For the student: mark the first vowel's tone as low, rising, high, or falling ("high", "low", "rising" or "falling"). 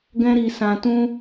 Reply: high